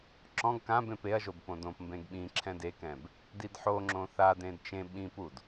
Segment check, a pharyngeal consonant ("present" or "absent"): present